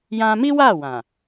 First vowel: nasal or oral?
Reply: nasal